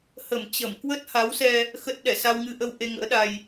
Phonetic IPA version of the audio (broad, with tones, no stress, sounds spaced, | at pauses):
h ə˧˩ m t͡ɕ ə˧˩ m k w ə˦˥ t̚ h a˨˦ w s ɛ˧ | x ə˦˥ t̚ ɗ ɛ˧˩ s a˧ w ŋ ɨ˧ ʔ ə˧ w ʔ e˧ ŋ ə̰ː˧˥ ɗ a˧ j